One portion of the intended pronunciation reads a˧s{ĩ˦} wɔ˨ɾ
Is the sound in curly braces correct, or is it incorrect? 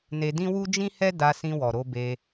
incorrect